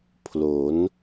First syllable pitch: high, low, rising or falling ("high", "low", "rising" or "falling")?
rising